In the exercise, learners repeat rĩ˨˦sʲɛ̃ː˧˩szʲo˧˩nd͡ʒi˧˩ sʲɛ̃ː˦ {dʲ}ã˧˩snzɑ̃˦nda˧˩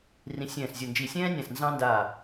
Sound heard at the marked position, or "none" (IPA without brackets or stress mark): nʲ